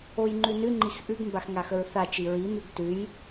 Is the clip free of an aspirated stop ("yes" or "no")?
yes